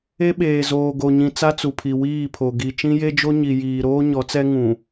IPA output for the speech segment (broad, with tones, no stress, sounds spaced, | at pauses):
e˦ ɓ eː˨ z oː˨ ɡ o˨ ɲ ĩ˨ t͡s a˦ t͡s u˨ pʰ i˨ w iː˦˨ pʰ o˨ ɡ i˨ t͡ʃ ĩ˦ j e˦ d͡ʒ o˦ ɲ i˨ j iː˨ ɾ oː˦ ɲ ɔ˨˦ t͡s ɛ˦ ŋ ũ˨